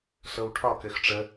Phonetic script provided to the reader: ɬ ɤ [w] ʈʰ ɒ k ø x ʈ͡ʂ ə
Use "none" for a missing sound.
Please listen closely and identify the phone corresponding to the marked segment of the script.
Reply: w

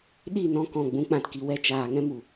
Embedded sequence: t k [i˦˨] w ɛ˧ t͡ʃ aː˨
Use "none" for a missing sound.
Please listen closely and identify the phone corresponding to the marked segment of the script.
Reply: i˨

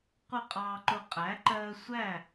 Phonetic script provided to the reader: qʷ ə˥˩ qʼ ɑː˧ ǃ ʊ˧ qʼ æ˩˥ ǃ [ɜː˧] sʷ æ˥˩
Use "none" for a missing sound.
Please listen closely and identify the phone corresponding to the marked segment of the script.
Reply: ɜː˧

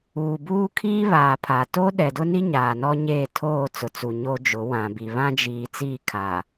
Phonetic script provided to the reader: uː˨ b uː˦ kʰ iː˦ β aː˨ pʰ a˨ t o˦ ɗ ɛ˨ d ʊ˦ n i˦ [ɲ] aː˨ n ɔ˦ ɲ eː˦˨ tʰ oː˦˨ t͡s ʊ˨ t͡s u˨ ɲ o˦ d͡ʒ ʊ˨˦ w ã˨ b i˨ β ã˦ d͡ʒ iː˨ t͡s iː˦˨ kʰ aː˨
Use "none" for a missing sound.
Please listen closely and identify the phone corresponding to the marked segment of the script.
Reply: ɲ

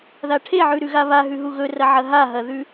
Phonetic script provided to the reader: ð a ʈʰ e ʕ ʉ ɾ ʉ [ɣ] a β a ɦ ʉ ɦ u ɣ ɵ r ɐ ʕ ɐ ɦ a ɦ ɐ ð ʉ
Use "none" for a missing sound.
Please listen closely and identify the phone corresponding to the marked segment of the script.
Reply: ɣ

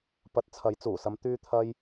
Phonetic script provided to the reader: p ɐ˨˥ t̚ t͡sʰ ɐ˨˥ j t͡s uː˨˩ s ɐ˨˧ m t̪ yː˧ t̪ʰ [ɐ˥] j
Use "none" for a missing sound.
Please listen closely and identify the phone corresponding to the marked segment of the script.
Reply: ɐ˧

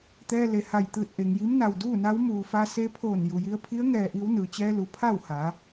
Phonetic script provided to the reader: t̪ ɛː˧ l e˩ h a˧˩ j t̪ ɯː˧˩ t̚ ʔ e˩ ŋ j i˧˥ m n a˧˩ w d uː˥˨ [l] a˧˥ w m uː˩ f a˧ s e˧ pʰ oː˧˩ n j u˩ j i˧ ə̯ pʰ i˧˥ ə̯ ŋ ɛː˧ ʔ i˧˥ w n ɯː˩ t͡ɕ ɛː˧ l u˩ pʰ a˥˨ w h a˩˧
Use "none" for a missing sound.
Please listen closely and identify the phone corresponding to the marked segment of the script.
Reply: n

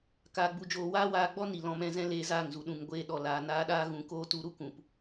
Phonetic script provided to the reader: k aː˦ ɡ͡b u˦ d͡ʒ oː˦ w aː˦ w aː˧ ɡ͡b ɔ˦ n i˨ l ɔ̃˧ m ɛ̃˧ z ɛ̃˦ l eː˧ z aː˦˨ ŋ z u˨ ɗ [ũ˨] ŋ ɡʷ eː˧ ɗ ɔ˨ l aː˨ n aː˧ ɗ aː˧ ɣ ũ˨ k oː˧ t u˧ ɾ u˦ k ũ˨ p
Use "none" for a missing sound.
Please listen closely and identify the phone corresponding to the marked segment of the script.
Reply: ũ˨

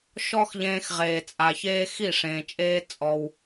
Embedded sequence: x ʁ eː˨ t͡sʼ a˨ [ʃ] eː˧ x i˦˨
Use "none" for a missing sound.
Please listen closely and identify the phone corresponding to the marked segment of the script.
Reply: ç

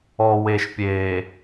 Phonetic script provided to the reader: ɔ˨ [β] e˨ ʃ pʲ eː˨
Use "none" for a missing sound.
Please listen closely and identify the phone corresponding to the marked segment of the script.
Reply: w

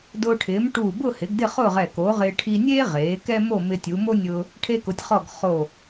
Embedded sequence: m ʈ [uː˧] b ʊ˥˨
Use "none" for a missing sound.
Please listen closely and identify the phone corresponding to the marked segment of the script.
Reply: uː˧˩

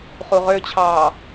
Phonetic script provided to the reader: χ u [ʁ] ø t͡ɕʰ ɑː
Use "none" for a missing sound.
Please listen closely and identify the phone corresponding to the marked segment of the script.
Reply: ʁ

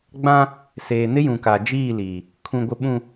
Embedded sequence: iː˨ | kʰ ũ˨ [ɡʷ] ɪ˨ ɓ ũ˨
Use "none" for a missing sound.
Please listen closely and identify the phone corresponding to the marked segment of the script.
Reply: ɡʷ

